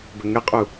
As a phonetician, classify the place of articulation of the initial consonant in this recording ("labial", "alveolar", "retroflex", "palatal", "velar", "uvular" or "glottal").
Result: labial